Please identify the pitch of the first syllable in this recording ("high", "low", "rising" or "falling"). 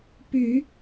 low